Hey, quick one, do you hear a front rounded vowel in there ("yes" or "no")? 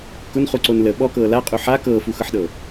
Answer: no